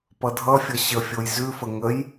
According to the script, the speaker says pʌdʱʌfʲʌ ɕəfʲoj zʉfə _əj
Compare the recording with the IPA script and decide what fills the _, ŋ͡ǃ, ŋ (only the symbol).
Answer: ŋ